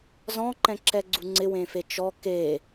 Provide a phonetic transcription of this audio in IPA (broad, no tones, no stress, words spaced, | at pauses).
zɔ̃ǃɛ̃ǁɛɡ͡ǀu ŋ͡ǀɪwẽfe t͡ʃɔ ke